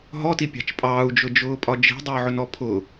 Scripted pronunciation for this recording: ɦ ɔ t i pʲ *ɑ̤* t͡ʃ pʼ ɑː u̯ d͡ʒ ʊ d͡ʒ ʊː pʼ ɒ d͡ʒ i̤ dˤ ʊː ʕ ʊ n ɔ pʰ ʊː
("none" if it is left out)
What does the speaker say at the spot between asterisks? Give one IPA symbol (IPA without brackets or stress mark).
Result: ɑ̤